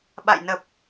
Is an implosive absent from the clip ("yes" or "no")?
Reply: no